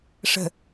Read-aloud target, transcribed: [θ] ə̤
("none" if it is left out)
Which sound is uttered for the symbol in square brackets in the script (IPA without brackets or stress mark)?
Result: ʂ